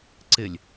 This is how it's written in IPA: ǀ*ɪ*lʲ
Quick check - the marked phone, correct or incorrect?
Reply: correct